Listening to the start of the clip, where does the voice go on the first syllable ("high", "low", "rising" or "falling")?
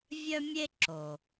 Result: high